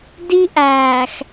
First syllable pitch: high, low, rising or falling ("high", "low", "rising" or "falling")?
high